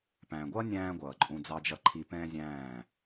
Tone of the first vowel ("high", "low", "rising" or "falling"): low